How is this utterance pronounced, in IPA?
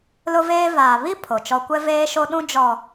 l ʊ˦ v eː˦ v aː˨ β i˦ pʰ o˨ t͡ʃ ɔ˦ kʷ ɛ˦ v eː˦ ʃ o˦ ɗ ũ˦ d͡ʒ ɔ˨

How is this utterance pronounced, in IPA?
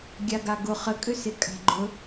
ɡʲ a ɡ a ɡ ʊ χ ə kʼ ʏ s ɪ kʼ a̤ ɡ͡ǃ ɵ

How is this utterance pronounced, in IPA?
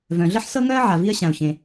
v œ̃˩ ɮ ɘ˥ ħ s ɤ˥ ŋ œ˥ ə̯ ʕ a˩ v i˥ ə̯ ɕ ã˩ ʊ̯ ç ẽ˩

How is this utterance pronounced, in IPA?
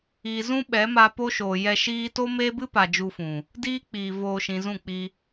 i˨ z ũ˦ ɓ ɛ˨˦ m a˧ p o˦ ʃ oː˨ j ɛ˧ ʃ iː˦ t o˦ m eː˦ b ɨ˦ p a˨ d͡ʒ u˧ f ũ˨ | d iː˦ k͡p iː˨ v oː˧ ʃ ĩ˨ z ũ˦˨ k͡p i˧

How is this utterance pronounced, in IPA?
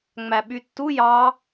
ŋ͡m æ ɓ y tː u j ɑ

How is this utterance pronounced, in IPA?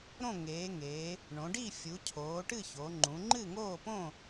ɾ õ˥˨ ŋ eː˩˧ ŋ eː˩˧ | ɳ õ˩˧ ɖ i˥˨ fʲ u˩˧ cʰ oː˩˧ ʈ ɨ˥˨ ç o˩˧ ŋ͡ǃ ũ˩˧ ŋ͡ǃ ɨ˥˨ ŋ oː˥˨ p õ˥˨

